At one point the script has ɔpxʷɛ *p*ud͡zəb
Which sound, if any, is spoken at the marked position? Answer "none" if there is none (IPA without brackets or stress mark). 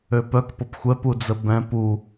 p